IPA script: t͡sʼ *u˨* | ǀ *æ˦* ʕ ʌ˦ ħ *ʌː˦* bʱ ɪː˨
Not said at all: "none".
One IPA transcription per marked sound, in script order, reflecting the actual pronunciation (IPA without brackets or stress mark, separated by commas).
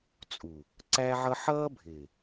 u˨, æ˦, ʌː˦